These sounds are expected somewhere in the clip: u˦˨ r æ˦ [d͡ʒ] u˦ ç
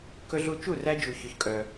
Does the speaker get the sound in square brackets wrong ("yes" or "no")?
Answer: no